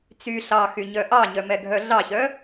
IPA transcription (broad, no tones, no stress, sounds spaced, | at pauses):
t͡s y ɬ ɑ x y ɲ œ ʔ ɑ ɲ œ m ɛ ɡʱ œ ɮ ɑ ç œ